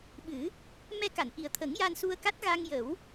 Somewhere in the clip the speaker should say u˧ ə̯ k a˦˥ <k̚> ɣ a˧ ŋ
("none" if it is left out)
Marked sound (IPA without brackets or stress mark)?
t̚